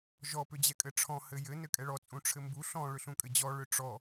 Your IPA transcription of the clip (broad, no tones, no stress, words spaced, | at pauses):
ʒɔ pʏd͡ʑɛkʼɘʈ͡ʂʰɔ̃ hɘjɘ nɘkʼɛɭɔ t͡sʼũʈ͡ʂʰɘmbu ɬɔ̃ ɭʏɬũkʼɘd͡ʑɔ ɭʏʈ͡ʂɔ